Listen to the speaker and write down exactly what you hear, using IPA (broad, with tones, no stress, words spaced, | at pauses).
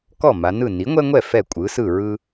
kɔ˥˩ ma˩˧nɯ˥˩ ni˩˥ŋʷɛ˦ŋʷɛ˥˩ fɛ˥˩kʷʼɯ˩˥sɯ˥˩ ɹɯ˦